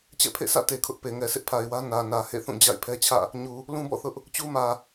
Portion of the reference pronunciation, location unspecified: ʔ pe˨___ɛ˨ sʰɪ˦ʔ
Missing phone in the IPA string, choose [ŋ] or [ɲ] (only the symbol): ŋ